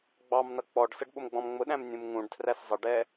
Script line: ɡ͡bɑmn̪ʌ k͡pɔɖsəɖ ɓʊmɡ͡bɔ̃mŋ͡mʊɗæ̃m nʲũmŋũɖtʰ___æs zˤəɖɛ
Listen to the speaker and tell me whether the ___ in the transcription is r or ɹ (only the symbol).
r